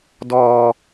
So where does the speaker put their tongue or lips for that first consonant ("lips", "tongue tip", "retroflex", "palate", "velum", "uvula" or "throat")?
tongue tip